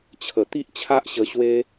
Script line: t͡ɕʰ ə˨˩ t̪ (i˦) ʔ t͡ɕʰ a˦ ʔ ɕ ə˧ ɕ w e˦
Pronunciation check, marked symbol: correct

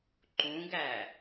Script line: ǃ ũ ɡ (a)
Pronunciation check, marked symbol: incorrect: æ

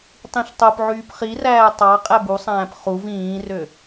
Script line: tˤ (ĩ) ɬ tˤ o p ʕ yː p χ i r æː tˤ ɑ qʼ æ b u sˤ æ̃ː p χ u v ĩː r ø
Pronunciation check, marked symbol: correct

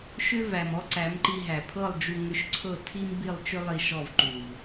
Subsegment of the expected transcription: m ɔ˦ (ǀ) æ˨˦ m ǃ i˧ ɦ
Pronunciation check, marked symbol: correct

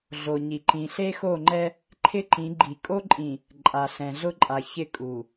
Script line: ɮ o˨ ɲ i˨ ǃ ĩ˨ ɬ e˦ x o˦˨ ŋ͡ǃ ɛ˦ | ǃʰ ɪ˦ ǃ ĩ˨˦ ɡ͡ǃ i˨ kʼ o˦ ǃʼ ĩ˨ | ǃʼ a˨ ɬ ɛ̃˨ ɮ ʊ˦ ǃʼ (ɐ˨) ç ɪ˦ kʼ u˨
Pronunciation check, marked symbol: incorrect: a˨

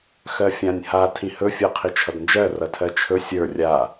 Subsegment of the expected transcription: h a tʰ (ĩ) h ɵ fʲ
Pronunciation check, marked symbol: correct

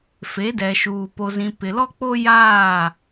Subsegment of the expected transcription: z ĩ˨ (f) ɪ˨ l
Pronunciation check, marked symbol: incorrect: p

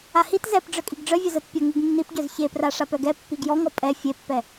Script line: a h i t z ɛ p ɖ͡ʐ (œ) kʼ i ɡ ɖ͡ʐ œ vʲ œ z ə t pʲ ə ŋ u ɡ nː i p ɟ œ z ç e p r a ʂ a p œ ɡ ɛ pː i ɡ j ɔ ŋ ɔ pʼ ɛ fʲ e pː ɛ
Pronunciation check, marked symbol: correct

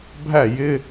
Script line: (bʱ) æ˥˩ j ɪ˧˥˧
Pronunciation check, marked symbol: correct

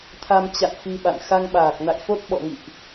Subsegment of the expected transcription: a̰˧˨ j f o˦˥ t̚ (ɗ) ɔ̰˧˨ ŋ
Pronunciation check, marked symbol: incorrect: ɓ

